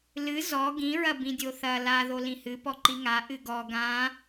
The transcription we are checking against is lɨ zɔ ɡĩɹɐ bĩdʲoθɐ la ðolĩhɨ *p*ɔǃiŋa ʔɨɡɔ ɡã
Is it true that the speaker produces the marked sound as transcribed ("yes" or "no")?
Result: yes